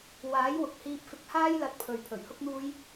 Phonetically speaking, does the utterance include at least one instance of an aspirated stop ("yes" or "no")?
yes